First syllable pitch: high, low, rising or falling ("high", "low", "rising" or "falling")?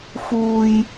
low